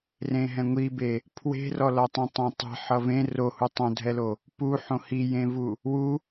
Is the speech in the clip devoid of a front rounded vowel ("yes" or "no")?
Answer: yes